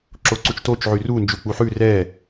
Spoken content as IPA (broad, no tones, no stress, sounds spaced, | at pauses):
ǁ o ǀ u t͡ʃ t o t͡ʃ ʕ y r u n d͡ʒ u k͡p u ħ ʉ r ɛ